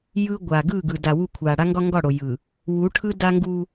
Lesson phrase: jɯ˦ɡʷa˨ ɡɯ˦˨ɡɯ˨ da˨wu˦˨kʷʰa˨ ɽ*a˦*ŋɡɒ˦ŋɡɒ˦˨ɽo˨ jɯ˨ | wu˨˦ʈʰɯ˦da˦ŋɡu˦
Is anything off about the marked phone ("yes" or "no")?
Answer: no